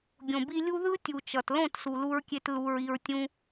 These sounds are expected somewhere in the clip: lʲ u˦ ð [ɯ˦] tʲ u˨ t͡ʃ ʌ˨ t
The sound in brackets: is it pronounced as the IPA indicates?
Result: yes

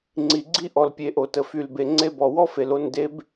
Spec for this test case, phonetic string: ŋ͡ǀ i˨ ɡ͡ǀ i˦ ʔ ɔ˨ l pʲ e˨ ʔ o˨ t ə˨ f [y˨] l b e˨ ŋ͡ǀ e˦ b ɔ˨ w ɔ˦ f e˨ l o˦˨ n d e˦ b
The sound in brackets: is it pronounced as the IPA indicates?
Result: yes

